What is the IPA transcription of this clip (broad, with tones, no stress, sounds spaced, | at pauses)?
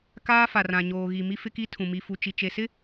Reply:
k aː˦ f a˨ r ã˨ ɲ oː˨ ɣ i˨ m i˦ f ɪ˦ k i˦ tʰ ũ˨ m i˨ f u˨ t͡ʃ i˨ t͡ʃ e˨ s ɪ˦